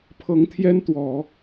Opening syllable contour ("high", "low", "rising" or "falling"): rising